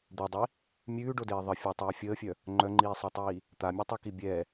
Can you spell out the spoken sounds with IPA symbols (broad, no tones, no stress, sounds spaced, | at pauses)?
d̪ e dˤ i | mʲ ʉː ɖ o d eː ðˤ ə fʲ ɛ tˤ iː fʲ əː fʲ œ | ŋ͡ǃ œ ŋ͡ǃ iː sˤ ɛ tˤ iː | t̪ a mʲ o tˤ ʉ k i bʲ ɛ